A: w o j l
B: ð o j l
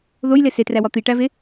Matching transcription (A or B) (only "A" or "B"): B